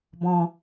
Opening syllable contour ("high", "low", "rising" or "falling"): low